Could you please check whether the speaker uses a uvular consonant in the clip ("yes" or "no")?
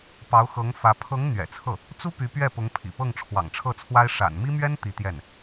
no